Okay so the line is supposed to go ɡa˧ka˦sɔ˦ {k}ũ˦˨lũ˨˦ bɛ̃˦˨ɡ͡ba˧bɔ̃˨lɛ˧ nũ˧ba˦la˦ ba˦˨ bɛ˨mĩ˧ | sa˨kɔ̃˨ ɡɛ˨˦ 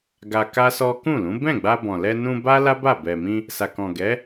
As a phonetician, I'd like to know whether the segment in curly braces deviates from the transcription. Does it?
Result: no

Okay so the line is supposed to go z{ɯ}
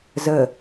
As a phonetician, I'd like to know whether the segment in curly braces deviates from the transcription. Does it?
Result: yes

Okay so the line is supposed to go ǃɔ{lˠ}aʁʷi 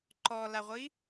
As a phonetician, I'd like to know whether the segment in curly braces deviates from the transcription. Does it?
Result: yes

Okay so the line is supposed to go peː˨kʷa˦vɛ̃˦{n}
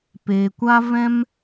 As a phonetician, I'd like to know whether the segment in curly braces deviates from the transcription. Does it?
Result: yes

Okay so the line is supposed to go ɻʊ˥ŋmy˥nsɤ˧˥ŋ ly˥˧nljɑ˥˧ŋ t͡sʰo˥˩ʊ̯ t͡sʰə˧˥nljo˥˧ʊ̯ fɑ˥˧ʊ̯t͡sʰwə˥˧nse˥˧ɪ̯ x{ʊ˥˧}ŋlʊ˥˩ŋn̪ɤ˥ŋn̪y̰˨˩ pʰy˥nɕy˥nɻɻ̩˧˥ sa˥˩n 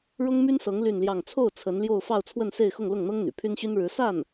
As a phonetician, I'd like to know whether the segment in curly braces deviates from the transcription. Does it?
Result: no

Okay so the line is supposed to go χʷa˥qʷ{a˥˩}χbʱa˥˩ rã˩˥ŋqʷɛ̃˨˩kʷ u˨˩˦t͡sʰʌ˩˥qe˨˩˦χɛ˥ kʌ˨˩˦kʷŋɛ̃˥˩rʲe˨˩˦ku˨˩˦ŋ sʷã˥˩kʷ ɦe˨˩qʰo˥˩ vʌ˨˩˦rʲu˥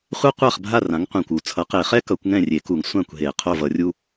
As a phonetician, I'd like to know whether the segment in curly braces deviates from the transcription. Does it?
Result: no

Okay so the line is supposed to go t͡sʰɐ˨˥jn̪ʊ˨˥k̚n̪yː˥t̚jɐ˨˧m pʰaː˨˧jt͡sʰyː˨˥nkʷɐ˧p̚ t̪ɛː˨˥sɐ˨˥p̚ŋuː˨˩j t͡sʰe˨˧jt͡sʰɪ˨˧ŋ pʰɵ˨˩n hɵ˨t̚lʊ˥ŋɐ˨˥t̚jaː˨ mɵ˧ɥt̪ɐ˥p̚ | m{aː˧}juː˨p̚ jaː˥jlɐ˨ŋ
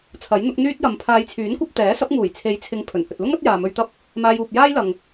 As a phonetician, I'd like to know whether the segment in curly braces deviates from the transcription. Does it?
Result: no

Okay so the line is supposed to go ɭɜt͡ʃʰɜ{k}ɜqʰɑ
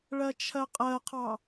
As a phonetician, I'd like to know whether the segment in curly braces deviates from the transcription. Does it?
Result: yes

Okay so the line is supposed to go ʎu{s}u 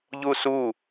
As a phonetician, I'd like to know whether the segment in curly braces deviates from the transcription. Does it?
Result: no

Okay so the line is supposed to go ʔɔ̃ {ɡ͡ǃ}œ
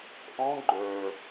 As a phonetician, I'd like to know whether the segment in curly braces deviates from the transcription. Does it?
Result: no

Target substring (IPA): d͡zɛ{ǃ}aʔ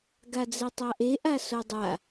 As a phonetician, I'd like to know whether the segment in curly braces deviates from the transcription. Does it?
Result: yes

